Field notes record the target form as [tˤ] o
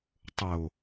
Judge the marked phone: correct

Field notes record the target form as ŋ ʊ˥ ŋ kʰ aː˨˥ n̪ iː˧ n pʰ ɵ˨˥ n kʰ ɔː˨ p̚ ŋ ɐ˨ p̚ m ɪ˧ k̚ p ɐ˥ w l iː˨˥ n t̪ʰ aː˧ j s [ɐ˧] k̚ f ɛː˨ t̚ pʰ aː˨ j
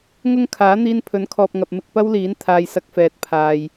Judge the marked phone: correct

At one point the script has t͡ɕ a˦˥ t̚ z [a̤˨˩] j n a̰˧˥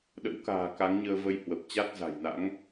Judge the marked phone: correct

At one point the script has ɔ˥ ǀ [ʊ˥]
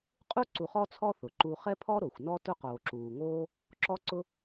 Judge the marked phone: correct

